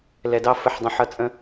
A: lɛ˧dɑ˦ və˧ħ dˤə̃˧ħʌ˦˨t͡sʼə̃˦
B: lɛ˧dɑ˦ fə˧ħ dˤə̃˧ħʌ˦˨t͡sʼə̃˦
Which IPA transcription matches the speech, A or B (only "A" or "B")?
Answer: B